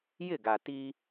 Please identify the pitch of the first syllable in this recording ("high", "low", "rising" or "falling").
falling